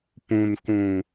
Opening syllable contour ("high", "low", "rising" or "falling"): low